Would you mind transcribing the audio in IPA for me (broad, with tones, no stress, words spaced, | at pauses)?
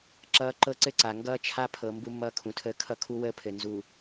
ǁʌː˦ ǃɤ˦ǀɘ˦ǀa˨ ŋɡʌː˦t͡ʃʰa˦pʰɤ˨ mbu˦mːʌː˦kʰũ˨tʰəː˦ kʰʌ˦kʰu˦wəː˦pʰɘ˨ nzu˨